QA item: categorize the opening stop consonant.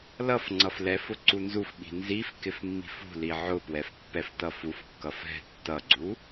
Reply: click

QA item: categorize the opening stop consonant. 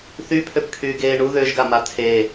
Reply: aspirated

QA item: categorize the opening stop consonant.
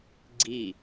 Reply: click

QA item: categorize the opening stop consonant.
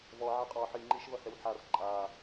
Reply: ejective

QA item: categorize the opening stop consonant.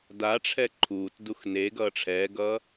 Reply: plain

